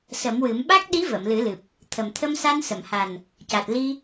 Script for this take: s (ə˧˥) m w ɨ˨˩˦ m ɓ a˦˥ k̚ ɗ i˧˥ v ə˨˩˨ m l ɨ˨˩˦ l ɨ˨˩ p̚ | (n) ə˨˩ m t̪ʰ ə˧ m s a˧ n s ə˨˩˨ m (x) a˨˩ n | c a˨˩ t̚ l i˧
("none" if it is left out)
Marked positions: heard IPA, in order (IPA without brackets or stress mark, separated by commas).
ə˨˩˦, t̪ʰ, h